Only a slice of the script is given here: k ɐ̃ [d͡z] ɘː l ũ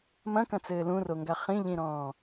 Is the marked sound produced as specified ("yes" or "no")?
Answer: no